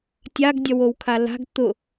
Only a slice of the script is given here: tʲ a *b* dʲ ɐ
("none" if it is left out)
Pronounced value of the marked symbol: ɡ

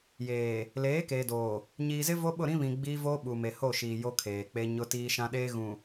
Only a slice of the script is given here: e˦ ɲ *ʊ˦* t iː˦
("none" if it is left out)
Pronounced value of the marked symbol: ʊ˦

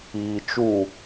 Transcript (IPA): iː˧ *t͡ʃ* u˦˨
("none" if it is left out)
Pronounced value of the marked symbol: t͡ʃ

